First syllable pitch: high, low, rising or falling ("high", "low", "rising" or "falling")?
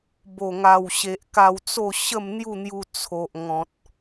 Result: low